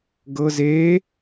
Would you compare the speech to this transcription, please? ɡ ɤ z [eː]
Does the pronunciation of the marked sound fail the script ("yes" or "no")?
no